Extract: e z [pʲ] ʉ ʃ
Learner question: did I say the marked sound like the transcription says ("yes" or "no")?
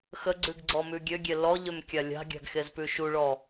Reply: no